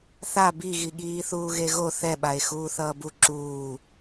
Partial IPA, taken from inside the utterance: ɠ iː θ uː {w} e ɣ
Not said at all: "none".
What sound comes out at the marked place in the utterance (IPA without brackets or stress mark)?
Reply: ɣ